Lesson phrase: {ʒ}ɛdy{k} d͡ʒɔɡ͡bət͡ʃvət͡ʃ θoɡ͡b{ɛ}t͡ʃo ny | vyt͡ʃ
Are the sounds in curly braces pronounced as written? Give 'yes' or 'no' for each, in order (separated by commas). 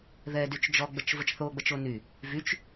no, no, no